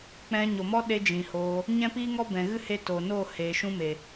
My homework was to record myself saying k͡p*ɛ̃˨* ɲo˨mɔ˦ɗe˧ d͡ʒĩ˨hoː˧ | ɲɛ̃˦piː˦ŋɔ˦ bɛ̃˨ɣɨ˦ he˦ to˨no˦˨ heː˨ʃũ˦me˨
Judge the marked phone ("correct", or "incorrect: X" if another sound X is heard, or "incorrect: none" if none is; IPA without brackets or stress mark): incorrect: ɛ̃˧